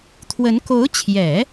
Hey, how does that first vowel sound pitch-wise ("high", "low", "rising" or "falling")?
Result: rising